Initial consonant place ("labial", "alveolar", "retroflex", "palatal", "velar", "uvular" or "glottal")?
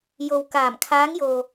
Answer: palatal